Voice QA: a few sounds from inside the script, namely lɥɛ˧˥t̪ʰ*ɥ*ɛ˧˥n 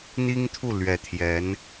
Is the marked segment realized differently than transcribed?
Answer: yes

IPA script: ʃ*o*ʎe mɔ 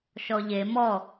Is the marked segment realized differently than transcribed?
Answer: yes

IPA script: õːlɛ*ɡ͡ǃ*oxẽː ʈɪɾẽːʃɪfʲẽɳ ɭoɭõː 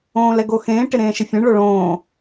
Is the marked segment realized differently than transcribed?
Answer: yes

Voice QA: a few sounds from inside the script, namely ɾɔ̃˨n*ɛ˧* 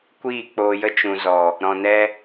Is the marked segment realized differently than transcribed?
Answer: no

